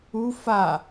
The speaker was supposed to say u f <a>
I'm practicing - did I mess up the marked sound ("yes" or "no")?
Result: no